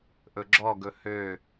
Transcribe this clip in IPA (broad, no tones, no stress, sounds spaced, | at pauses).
ʔ ɵ ɡ͡ǁ ɔ ɡ ɵ h ø